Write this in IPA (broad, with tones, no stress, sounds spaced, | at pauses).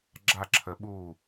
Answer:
ɡ͡ǁ a˥˩ ǁʰ ə˧˥ ɓ uː˥˩